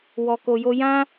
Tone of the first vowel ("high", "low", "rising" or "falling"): low